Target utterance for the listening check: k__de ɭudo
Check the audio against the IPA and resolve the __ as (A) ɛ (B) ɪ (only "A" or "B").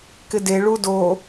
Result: B